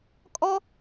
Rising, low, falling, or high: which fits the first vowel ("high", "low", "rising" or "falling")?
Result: high